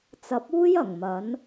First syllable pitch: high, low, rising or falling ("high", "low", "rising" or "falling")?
rising